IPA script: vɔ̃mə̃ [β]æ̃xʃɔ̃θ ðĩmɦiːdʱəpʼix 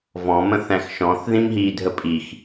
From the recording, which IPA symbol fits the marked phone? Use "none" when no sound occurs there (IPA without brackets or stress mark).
θ